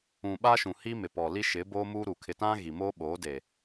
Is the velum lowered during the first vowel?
yes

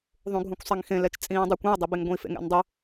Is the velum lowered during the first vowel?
yes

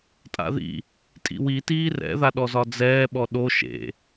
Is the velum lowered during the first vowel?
no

